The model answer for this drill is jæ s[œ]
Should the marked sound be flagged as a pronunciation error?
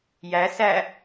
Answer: yes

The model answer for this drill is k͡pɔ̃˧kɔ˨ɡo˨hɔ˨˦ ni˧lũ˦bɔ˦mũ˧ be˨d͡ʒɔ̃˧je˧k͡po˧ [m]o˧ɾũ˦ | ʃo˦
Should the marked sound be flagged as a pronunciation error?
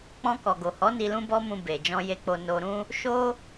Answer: yes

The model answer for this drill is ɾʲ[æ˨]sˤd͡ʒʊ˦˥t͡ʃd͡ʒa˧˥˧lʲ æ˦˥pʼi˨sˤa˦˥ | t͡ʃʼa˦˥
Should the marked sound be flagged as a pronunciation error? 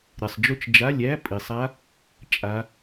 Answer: yes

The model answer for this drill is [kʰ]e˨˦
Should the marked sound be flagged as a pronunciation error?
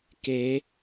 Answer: yes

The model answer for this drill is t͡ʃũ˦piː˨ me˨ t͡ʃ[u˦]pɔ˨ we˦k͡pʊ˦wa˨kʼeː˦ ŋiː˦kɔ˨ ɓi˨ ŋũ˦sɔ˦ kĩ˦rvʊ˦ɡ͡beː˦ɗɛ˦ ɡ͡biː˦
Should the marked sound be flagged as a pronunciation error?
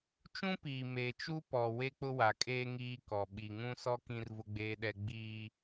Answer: no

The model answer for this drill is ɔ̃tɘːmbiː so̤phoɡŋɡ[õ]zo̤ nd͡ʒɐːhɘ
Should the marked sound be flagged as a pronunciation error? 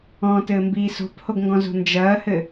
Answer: yes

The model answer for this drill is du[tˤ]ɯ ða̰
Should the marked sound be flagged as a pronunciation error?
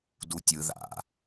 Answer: yes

